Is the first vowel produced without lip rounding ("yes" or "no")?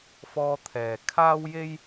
no